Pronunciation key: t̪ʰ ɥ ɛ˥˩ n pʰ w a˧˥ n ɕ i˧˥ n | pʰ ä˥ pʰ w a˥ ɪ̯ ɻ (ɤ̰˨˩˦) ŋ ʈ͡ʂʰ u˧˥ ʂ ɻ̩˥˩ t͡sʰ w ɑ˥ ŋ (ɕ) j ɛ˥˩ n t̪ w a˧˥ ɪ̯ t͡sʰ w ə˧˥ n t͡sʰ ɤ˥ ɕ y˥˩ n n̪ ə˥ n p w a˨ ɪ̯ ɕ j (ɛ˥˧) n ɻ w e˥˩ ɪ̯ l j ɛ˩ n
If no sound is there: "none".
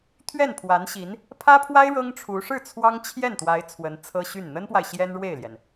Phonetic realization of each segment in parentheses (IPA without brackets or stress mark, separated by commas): ɤ˥, t͡ɕʰ, ɛ˥